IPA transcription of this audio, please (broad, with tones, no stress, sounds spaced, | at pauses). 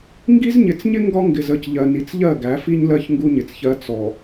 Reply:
ŋ ɡ i˦ z ɲ ɪ˨˦ t͡s ɲ ɪ˦ ŋ ɡ ɒ˦ ŋ ɡ ɪ˨ z ə˦˨ c ʎ ɜ˨ n i˨ t͡s ʎ ɜ˦˨ ɡ æ˨˦ f i˦ ɲ l ɜ˦ ç ŋ ɡ u˦ ɲ ɪ˨ t͡s ç ɜ˦ t͡s ɔ˨